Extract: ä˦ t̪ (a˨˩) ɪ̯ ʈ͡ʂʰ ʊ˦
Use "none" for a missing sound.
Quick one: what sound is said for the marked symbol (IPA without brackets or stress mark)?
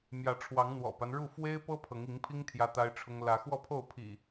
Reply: a˦